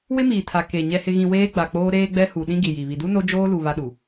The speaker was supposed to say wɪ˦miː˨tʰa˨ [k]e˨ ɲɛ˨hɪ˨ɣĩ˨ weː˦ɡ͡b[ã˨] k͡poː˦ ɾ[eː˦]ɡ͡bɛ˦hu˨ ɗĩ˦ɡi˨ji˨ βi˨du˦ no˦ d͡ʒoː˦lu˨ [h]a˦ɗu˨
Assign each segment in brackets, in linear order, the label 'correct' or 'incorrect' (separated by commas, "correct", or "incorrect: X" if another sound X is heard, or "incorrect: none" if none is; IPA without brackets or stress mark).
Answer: correct, incorrect: a˨, correct, incorrect: β